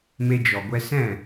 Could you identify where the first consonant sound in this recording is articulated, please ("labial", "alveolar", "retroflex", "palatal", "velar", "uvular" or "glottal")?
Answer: labial